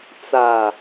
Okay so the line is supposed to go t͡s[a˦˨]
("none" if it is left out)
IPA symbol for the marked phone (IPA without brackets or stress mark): a˨